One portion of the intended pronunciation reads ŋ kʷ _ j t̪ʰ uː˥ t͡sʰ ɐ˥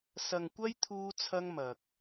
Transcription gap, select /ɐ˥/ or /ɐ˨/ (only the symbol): ɐ˥